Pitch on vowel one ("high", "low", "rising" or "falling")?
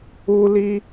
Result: high